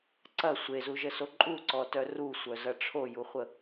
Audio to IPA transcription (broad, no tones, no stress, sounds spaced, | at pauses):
ǀ ɐ sʷ e z u ʒ ə s o ǃʼ u ǀ ɔ t œ r u sʷ œ z ɐ ʈ͡ʂʰ o j u χʷ ə